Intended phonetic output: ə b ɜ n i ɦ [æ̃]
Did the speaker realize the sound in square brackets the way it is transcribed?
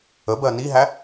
no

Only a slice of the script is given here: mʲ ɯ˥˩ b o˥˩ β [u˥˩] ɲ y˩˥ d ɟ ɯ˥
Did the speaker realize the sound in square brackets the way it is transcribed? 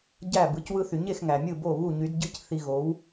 yes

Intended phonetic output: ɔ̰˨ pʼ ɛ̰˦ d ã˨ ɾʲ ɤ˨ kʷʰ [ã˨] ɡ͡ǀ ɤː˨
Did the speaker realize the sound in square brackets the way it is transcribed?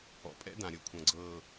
no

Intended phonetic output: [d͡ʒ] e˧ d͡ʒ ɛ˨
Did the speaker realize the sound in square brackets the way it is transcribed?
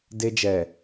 no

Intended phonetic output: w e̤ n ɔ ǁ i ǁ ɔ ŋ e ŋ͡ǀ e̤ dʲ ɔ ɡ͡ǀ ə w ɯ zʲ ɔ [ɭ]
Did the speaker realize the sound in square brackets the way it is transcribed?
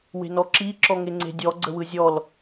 no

